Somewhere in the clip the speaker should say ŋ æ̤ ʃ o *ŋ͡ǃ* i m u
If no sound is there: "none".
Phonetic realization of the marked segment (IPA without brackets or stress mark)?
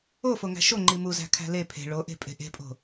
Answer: ŋ͡ǃ